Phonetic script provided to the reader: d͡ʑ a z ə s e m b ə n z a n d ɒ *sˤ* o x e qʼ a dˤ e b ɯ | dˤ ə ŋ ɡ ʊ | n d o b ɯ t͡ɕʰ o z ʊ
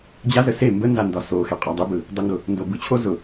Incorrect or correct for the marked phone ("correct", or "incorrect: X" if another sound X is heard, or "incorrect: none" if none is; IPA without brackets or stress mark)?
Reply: incorrect: s